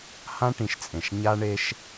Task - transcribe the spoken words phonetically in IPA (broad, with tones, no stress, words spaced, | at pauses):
hã˦ʈĩ˨ʃt͡sʼẽ˨ʃ ɲa˦ɳe˦ʃ